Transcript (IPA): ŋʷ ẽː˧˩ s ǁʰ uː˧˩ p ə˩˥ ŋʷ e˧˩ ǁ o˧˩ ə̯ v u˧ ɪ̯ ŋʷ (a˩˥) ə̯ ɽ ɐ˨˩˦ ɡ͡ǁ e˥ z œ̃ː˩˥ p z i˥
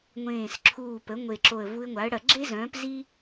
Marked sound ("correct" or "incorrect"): correct